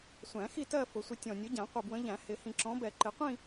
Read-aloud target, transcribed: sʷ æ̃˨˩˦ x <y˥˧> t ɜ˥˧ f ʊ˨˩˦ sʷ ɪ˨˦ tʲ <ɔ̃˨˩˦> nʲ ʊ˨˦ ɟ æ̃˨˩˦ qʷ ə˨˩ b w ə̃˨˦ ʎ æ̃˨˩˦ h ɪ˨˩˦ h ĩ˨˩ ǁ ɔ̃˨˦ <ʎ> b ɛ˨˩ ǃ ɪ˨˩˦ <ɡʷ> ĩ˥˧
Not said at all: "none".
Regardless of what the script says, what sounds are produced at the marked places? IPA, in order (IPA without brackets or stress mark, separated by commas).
i˥˧, ɔ̃˨˩, none, qʷ